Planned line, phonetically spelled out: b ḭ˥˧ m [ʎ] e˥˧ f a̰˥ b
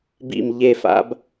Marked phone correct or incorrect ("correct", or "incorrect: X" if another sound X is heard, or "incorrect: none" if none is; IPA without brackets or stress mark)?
correct